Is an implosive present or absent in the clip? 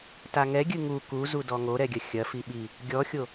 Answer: present